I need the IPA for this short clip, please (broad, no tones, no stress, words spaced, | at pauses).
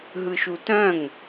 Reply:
ɦɯʃutœ̃ŋ